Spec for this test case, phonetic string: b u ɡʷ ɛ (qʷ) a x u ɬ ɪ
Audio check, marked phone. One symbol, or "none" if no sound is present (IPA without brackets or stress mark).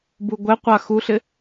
qʷ